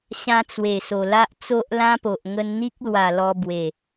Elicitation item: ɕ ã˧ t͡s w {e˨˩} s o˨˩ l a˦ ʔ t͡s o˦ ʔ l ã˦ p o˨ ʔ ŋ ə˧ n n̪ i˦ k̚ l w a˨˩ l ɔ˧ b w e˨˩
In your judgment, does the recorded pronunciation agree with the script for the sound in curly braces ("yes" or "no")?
yes